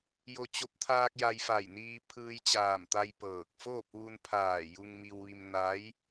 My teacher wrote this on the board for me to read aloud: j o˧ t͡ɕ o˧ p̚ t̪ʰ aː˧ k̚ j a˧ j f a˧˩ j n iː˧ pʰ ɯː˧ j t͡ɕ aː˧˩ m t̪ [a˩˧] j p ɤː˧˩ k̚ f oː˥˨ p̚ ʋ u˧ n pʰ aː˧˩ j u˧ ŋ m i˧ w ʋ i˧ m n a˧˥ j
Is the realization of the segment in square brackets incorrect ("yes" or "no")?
yes